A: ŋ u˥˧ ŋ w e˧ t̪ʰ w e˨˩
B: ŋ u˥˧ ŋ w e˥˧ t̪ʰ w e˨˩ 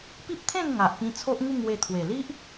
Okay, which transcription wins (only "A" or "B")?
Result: A